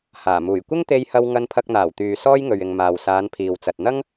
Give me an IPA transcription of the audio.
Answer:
h aː˨˩ m uː˨˩ j kʷ ɪ˥ ŋ t̪ e˧ j h ɐ˧ w ŋ ɐ˧ n pʰ ɐ˧ k̚ n̪ aː˨˩ w t̪ yː˨ s ɔː˥ j ŋ ɵ˨ ɥ ɪ˨ ŋ m aː˨ w s aː˨˧ n pʰ iː˨ w t͡s ɐ˨ t̚ n̪ ɐ˥ ŋ

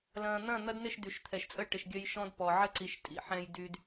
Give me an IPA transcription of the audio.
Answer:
l ɐ̃ː˨ n̪ ɐ̃˦˨ n̪ ɐ˦ d n ɪ˦˨ ʃ d y˨ ʃ t̪ʰ ɛ˨ ʃ t͡sʼ ə˦ ʈ ɪ˨ ʃ ɡʲ ɐ˦ j ʃ ɔ̃˦ d p ɔ˨ ʕ ə˦ ǀ i˨ ʃ tʼ ḭ˨ ħ ɛ̃˦ j d y˦ d

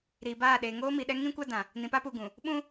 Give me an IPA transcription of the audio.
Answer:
ɾ iː˨ b aː˦˨ ɗ e˨ ŋ oː˦ m i˨ ɗ ɛ˦ ŋ ĩ˦ kʷ a˦ d ã˨ | n ĩ˨ p a˦ p uː˨ ɡ ũ˨ | ɓ ũ˦

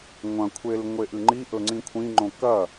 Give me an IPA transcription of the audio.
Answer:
ŋʷ ɐ̃ kʷʰ e l ŋʷ e ʔ ɨ ŋ͡ǃ i ʔ ɵ ŋ͡ǀ ĩ kʷʰ ĩ ŋ͡ǃ õ k ɐ

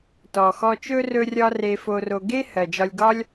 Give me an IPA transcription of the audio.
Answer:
t ɔ˩ x ɔ˧ t͡ʃ ɵ˥ r ɵ˧ rʲ ɒ˧ r e˧ f o˧ r o˧ ɡ e˥ h ɜ˩ d͡ʒ ɒ˧ lʲ ɡ ɒ˥ lʲ

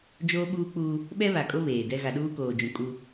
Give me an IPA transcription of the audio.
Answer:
d͡ʒ oː˦ ɓ uː˦ k͡p uː˦ | ɓ ɛ˦ β a˨ kʼ o˦ β eː˨ d ɛ˦ ɣ a˨ ɗ uː˦ k oː˨ d͡ʒ ũ˨ kʼ u˦

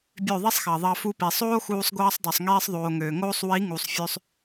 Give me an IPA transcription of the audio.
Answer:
bʲ ø˦˨ ðˤ i˦ sˤ x ɑ˨ ðˤ ɑ˧ f u˧ p i˨ sˤ oː˦ x uː˧ sˤ ɡʷ ɑː˧ sˤ dˤ ø˨ sˤ ŋ iː˧ sˤ ðˤ oː˨ ŋ øː˨ ŋ oː˦ sˤ w i˨˦ ŋ u˨ sˤ fʲ ø˧ sˤ

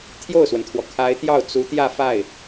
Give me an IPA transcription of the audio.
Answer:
t̪ʰ j o˥˩ ʊ̯ s w ə˩ n t̪ʰ w ɔ˩ kʰ a˧˥ ɪ̯ t̪ j ɑ˥˩ ʊ̯ t͡s u˧˥ t̪ j ä˥˧ f a˥˩ ɪ̯

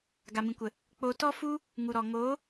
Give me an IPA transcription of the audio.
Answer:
ɡ a˨ m ĩ˨ kʷ ə˨ | k͡p o˧ t ɔ˦ f u˦ | ŋ u˨ ɾ ɔ˨ ŋ oː˨˦

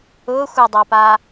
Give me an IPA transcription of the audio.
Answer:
ʊ xʷ ɪ dˤ a p a

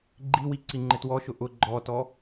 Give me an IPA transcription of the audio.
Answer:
ɡ͡ǃ i w i ǀ i ŋ͡ǃ ɪ t w ɔ ʃ ʊ ʔ ʊ ɡ͡ǃ ɔ t ɔ

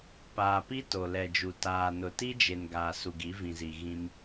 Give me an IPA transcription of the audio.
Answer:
p aː˨ p i˦ t o˨ l ɛ˨ d͡ʒ u˨ t aː˨ n ʊ˨ t i˦ d͡ʒ e˨ n ɡ aː˨ s u˨ ɡ i˨˦ v ĩ˨ z i˨ ɣ ĩ˦ m

